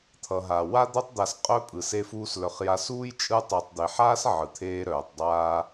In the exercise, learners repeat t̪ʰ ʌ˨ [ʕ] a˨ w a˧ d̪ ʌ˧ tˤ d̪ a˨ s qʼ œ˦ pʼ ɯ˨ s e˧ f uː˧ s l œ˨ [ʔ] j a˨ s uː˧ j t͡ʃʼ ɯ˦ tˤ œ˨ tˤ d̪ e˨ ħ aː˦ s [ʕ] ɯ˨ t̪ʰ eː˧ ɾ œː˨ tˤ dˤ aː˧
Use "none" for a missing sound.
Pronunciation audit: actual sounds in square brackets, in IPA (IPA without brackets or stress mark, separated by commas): ɦ, χ, ʕ